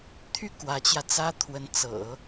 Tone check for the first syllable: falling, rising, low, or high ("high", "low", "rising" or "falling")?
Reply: falling